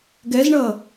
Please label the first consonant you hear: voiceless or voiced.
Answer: voiced